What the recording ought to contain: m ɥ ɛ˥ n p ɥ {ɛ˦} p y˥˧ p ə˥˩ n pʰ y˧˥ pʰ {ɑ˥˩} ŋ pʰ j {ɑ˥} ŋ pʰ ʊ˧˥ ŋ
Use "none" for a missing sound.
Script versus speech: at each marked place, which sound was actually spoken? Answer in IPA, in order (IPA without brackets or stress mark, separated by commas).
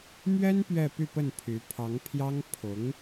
ɛ˥˧, ɑ˧˥, ɑ˥